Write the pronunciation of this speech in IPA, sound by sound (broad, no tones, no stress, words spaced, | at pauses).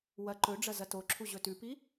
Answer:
wɐ ǃɵɖ͡ʐɐ zɐtoǁʰu ʑɵtʉpi